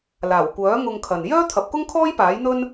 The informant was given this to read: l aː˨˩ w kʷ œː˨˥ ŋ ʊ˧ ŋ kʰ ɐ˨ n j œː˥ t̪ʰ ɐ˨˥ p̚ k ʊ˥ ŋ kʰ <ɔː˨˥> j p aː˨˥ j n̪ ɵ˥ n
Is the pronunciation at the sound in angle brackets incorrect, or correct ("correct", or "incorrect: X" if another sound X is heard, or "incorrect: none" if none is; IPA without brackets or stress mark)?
incorrect: ɔː˥